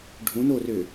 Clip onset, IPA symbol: ɖʱ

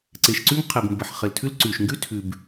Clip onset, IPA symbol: ǀ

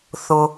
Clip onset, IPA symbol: θ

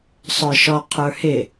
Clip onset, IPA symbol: sˤ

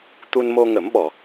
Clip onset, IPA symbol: t̪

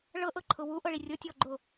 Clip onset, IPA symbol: ɭ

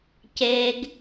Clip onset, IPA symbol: c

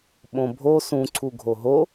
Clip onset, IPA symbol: ɓ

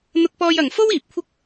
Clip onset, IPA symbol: n̪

